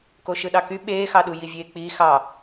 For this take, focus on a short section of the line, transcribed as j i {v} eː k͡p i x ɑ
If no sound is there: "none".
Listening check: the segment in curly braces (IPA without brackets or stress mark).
vʲ